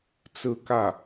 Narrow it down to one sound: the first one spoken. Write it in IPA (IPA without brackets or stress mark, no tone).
t͡s